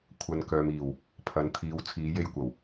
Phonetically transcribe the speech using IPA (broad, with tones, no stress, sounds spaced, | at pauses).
kʷʰ ɐ˨ n k œː˨ m iː˨˩ w | pʰ ɐ˨˧ n t̪ʰ iː˨˧ w t͡sʰ iː˨˧ j e˧ j kʷ ɐ˨˩ w